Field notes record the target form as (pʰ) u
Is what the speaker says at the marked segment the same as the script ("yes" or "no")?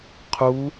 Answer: no